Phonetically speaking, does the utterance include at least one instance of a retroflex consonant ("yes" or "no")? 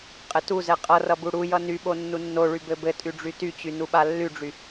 yes